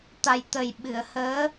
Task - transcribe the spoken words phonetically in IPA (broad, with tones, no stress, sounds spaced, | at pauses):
t̪ a˨˩ j t̪ ə˨˩ j ɓ ɨ˨˩˨ ə̯ h əː˧˥